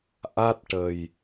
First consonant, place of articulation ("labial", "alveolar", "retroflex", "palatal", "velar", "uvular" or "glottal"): glottal